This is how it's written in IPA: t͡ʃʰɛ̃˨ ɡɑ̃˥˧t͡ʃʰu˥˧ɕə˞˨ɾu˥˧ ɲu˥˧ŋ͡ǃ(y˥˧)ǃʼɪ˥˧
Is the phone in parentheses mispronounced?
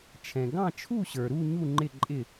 yes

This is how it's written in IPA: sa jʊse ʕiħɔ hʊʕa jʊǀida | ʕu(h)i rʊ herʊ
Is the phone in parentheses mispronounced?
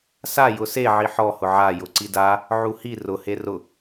no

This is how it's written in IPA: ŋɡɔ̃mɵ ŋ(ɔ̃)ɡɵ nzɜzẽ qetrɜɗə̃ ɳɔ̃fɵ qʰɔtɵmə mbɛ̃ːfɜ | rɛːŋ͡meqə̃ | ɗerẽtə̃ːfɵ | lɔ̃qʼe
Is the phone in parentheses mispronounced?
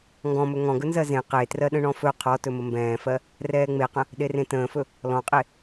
no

